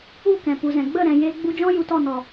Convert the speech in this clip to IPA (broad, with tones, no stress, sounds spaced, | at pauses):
u˦˨ k ɛ̃˨ p u˨ z ɛ̃˨ ɡ͡b ə˦˨ ɾ ɛ̃˨ j e˧ ɡ͡b u˧ d͡ʒ ɔ̃˦ j u˨ t ɔ˦˨ n ɔ˨